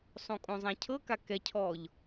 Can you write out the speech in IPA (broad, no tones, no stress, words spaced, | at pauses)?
sˤõkʼõzˤãcʰɤ kakɛcʰɔʎ